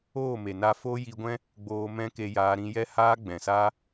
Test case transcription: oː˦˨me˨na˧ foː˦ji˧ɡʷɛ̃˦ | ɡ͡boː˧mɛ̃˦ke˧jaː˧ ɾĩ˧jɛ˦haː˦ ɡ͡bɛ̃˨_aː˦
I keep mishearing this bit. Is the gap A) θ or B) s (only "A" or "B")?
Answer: B